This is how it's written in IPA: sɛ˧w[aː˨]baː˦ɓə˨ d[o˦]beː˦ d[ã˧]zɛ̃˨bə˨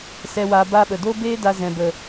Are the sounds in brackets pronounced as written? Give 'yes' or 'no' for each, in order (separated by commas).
no, yes, no